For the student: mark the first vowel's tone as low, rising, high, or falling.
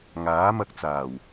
rising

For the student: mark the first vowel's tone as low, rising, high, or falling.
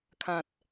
low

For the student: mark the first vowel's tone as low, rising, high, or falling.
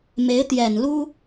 rising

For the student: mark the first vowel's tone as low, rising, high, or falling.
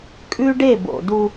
high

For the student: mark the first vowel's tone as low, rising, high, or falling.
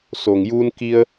low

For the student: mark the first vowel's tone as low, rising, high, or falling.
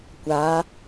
rising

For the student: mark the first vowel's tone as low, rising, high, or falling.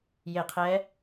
falling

